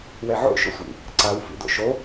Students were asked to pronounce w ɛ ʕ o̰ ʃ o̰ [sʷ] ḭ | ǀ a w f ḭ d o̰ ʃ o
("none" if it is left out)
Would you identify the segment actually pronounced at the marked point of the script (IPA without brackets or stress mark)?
sʷ